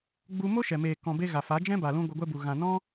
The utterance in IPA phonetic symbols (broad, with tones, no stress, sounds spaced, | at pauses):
ɡ͡b u˧ m o˦ ʃ ɛ˨ m eː˨ k ɔ̃˨ b e˧ ɣ a˨ f a˨˦ d͡ʒ ɛ̃˦ b a˨ l ũ˦ ɡʷ ɨ˧ ɡʷ ɛ˦ b u˨ ɣ ã˨ n ɔ̃˦